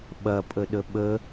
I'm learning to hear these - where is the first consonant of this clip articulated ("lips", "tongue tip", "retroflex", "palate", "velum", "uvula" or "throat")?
lips